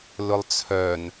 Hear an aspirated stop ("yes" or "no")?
yes